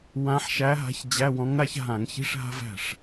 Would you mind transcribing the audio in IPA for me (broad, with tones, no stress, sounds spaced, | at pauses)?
w ã˧˥ ħ ʃ æ˧˥ ɦ a̤˧˥ ç d͡ʑ æ˧˥˧ w ɔ̃˧˥ ŋ ɾ a˥ ç ɦ ã˧˩˧ ŋ ç i̤˧˥˧ ʂ ɦ a̤˥ v æ̤˥˩ ʂ